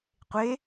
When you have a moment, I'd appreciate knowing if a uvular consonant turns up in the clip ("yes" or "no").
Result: yes